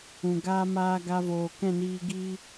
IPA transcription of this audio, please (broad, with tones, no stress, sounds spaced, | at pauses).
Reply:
ũ˨ ɡ aː˧ m aː˧ ɡ a˧ v oː˨ k ɛ̃˦˨ n iː˧ ɡ i˦